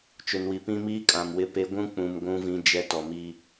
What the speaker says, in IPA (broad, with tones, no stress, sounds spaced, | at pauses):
t͡ʃ ʊ˨ n w i˨ p ĩ˦ m iː˦ kʼ ã˨ m w ɪ˦ p e˦ ɡʷ ũ˦ k͡p ũ˨ m ɡʷ ũ˦ v ĩ˦ d͡ʒ ɛ˦ t ɔ˨ m i˦